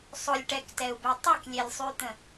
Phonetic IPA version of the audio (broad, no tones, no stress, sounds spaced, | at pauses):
sˤ ʊ lʲ ʈ ɛ k t ɛ u̯ b e tˤ ʉ k lʲ e lʲ sˤ ʉ t̪ ə̃